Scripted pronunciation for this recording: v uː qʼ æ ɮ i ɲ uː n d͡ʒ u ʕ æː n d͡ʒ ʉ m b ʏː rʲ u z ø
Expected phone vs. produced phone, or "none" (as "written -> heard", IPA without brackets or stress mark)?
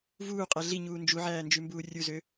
ʏː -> uː